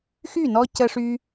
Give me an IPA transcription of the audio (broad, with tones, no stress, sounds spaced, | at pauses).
x y˦˨ n ɔ˧ c ə˦ ʂ y˦